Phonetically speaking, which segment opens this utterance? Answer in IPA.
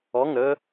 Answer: ɔ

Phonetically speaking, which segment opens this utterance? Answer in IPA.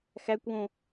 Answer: x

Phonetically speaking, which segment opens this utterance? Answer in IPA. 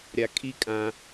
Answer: ɾʲ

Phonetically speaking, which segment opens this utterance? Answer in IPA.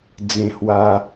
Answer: d͡z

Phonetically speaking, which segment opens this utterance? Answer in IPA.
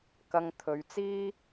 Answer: k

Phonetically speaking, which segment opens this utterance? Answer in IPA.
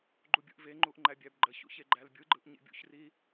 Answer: ɡ͡ǃ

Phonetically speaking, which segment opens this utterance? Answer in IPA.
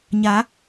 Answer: ɲ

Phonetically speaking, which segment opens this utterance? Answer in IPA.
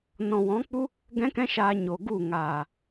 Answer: n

